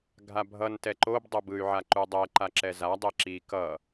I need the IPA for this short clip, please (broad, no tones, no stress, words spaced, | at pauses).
ɡʱabʱʌn tɛǃob dˤobɯy̯ ʕaǃudˤɛ ǃaǁɛza dˤeǁi kʌ